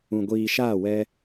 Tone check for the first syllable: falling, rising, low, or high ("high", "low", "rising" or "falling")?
low